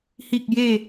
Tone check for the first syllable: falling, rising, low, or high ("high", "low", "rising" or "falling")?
low